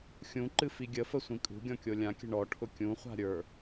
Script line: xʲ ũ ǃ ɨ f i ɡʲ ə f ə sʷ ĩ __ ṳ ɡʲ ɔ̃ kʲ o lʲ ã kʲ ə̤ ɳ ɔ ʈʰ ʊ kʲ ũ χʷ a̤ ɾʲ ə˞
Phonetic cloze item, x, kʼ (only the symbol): kʼ